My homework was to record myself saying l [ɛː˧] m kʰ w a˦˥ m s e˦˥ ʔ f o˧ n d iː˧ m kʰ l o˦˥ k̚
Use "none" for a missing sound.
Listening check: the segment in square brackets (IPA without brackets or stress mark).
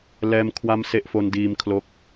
ɛː˧